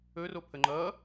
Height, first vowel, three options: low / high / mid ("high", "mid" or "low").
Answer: mid